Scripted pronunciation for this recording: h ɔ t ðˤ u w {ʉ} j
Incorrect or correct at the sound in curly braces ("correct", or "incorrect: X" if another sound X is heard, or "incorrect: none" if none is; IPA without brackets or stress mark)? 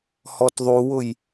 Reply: incorrect: ʊ